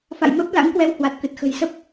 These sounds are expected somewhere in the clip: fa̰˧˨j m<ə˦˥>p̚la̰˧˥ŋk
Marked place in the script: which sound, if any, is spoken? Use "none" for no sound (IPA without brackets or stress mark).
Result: ə˦˥